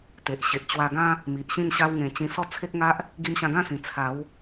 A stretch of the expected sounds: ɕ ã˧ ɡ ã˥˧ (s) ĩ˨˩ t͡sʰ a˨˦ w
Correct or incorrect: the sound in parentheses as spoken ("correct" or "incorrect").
correct